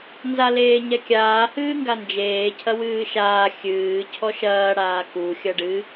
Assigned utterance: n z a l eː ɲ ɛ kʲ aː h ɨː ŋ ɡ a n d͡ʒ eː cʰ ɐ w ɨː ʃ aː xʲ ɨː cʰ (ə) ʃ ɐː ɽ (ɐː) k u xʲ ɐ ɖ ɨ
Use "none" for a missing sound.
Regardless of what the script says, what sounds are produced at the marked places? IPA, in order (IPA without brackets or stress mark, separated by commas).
ɔ, aː